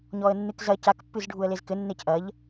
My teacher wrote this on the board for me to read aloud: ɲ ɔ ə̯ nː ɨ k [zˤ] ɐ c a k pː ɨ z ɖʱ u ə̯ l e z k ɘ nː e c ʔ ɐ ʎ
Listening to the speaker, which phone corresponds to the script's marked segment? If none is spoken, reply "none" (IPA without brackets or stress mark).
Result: z